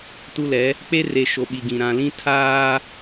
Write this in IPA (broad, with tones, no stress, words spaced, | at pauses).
tu˦lɛ˨˦ | k͡pe˦re˨ ʃo˨ɓi˨ɡĩ˨ ɾã˨lĩ˦ tʰaː˦